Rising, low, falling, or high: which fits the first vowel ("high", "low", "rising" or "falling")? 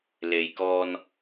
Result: low